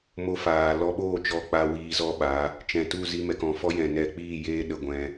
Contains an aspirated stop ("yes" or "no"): no